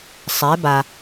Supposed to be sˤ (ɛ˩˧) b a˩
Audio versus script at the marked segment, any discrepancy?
no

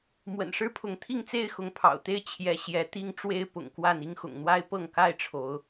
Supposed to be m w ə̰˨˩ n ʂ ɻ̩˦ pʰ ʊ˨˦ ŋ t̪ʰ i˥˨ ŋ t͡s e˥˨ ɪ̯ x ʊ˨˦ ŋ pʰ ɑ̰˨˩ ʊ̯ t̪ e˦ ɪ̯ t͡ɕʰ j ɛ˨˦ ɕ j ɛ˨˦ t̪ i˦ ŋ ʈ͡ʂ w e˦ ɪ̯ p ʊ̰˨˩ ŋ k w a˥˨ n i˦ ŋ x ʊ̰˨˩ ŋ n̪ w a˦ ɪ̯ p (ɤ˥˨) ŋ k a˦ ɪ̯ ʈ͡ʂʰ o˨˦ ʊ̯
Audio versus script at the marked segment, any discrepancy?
no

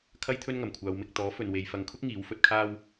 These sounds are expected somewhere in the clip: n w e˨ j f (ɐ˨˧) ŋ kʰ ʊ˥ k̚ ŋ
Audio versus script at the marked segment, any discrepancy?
no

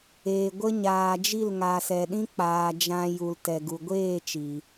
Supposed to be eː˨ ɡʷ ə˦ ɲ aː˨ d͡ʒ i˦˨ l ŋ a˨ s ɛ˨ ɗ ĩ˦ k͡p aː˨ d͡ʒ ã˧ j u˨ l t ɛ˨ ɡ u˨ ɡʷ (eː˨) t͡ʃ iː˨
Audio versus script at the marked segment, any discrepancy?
yes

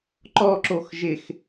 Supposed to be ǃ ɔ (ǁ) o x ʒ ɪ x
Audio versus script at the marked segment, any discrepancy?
no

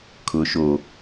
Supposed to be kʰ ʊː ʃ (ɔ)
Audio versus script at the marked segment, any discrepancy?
yes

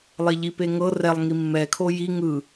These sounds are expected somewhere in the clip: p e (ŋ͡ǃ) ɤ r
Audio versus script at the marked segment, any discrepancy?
yes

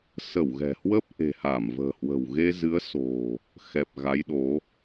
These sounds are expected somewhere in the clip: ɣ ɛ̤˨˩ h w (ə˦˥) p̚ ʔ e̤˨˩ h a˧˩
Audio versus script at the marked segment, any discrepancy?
no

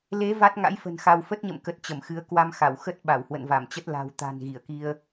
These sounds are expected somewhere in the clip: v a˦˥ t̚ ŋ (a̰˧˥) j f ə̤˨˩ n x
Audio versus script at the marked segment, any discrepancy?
no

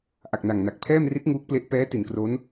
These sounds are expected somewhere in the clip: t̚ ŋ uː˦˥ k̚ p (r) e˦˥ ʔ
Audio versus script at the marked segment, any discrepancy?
yes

